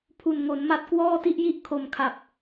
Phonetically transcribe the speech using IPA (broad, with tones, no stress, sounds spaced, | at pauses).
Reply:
pʰ u˨˩ n ŋ o˩˦ n m a˦˥ t̚ k w ɔː˥˩ t i˥˩ ʔ j i˥˩ ʔ kʰ o˨˩ m kʰ a˨˩ p̚